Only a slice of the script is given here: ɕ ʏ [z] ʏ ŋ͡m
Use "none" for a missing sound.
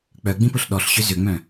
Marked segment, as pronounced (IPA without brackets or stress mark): z